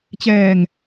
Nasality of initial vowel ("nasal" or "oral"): oral